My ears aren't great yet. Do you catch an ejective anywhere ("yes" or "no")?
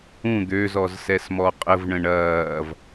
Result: yes